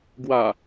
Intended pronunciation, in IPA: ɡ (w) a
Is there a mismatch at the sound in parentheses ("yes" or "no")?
no